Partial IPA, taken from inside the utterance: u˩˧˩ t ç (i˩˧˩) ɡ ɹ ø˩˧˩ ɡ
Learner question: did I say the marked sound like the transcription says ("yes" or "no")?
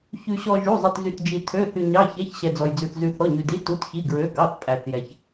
yes